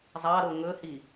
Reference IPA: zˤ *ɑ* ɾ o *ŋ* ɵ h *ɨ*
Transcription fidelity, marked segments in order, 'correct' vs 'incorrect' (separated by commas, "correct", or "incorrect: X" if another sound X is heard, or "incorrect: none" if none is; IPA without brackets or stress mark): correct, correct, incorrect: i